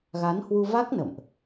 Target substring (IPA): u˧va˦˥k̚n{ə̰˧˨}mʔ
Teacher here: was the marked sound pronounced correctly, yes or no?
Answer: yes